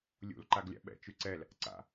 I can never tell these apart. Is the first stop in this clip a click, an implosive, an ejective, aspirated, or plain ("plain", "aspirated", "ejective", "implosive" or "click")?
click